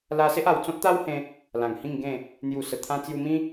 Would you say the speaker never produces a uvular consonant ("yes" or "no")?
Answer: yes